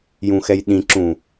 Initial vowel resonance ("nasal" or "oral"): nasal